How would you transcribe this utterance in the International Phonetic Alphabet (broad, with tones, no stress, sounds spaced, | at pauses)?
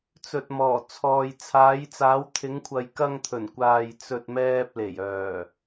t͡s ɵ˨ t̚ m ɔː˨˩ t͡sʰ ɔː˨ j t͡sʰ aː˨˧ j t͡s aː˨˧ w t̪ʰ ɪ˨˧ ŋ kʷʰ ɐ˨ j k ɐ˧ ŋ t̪ʰ ɵ˨˩ n kʷ aː˨ j t͡s ɵ˨ t̚ m ɛː˧ p̚ l e˨˩ j œː˨˩